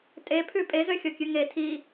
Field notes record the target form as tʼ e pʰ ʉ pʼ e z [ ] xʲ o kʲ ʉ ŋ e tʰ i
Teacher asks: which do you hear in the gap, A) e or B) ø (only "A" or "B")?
B